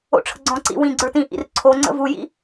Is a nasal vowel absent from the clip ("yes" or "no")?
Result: no